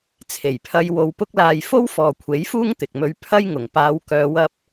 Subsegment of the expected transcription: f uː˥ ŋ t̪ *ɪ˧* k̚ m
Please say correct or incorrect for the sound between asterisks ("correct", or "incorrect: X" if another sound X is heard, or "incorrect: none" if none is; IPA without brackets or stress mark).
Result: incorrect: ɪ˨